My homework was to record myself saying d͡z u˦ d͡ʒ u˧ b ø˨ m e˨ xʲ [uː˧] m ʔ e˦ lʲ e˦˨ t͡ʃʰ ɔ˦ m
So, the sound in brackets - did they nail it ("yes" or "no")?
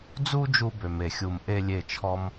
no